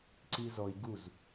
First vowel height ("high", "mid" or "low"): high